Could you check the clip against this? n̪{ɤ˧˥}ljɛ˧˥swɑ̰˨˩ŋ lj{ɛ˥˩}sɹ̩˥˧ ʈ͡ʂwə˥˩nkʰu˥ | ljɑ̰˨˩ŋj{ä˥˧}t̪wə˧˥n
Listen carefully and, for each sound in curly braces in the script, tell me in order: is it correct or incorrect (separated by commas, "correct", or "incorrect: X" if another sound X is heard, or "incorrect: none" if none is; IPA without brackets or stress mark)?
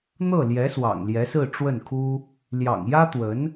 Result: incorrect: ɤ˥˩, incorrect: ɛ˧˥, incorrect: ä˥